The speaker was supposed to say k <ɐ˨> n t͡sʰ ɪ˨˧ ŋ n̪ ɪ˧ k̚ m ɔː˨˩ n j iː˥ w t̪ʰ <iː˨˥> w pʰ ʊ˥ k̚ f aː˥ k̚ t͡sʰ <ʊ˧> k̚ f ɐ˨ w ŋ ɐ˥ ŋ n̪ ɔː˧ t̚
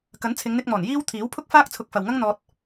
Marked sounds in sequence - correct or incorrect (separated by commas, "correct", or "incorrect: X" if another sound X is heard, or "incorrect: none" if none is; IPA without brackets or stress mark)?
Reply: incorrect: ɐ˨˥, correct, correct